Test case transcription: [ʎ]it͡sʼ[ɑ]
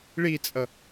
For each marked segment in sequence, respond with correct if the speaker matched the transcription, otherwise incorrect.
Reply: incorrect: ɭ, incorrect: ʌ

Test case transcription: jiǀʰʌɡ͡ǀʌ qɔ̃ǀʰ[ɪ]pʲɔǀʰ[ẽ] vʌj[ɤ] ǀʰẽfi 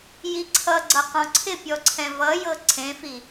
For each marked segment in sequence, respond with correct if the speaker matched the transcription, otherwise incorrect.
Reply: correct, incorrect: ɛ̃, correct

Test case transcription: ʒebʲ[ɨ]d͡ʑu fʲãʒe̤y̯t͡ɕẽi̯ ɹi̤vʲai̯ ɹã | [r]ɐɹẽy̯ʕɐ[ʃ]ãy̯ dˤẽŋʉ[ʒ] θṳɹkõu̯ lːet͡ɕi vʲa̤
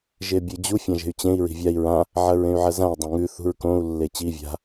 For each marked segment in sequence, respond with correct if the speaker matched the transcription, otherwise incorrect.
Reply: correct, incorrect: ʕ, incorrect: z, incorrect: none

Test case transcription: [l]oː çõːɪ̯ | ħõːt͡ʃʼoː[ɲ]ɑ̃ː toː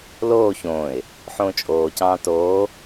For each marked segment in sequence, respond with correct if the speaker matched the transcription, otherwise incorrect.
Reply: correct, incorrect: c

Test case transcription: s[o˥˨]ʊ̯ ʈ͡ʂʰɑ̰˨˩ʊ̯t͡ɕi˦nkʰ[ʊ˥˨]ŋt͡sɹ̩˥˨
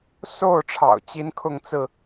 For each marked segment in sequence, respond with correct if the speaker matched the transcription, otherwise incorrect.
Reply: correct, correct

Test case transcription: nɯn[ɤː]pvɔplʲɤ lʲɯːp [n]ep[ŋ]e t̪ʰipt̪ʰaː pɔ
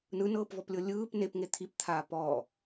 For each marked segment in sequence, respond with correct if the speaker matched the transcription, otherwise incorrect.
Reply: correct, correct, correct

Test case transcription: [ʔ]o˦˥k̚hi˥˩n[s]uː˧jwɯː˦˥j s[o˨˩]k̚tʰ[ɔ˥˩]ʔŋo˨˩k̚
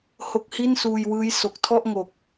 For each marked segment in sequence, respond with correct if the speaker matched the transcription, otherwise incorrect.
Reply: incorrect: h, correct, correct, correct

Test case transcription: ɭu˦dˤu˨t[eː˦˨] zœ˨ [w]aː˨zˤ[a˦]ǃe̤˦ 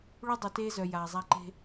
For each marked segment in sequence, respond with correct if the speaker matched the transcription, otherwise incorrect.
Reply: incorrect: eː˦, incorrect: j, correct

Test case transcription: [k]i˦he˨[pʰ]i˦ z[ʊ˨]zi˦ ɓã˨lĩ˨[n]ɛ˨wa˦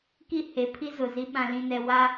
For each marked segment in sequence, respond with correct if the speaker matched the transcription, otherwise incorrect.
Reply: correct, correct, correct, correct

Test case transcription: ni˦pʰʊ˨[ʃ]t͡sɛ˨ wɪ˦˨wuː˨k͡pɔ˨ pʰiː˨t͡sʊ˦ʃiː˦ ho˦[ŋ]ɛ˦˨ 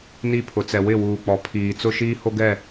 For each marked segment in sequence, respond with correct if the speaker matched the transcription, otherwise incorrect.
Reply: incorrect: none, incorrect: ɡ

